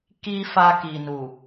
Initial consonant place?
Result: velar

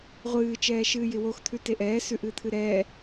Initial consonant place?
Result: uvular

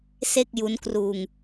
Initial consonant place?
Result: alveolar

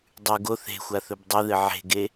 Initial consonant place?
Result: alveolar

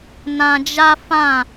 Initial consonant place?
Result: alveolar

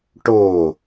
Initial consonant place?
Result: retroflex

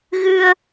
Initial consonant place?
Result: velar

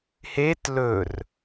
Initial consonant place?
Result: glottal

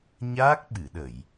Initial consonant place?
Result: palatal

